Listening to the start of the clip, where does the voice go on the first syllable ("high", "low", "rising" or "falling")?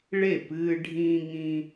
falling